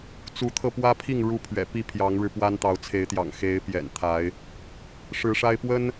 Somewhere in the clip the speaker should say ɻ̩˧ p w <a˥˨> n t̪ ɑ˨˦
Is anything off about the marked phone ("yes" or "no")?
yes